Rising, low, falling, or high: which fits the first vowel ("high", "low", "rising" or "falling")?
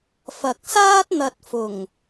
low